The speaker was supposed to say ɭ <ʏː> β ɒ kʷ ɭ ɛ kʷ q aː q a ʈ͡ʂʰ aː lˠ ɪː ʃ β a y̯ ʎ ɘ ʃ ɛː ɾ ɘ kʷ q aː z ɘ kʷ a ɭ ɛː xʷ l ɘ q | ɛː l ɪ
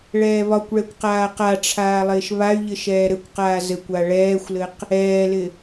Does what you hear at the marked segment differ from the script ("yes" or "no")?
yes